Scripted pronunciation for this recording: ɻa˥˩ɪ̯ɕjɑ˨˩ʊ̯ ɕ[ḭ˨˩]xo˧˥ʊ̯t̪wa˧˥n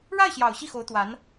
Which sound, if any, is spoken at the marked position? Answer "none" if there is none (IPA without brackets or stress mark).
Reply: i˥˩